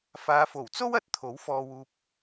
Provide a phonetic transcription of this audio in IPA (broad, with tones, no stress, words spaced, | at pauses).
faː˨˧fo˨˩wt͡so˥w ɐ˨˥t̚t̪ʰo˨˥wfɔː˧wuː˧p̚